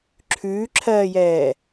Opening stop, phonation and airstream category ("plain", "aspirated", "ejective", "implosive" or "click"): click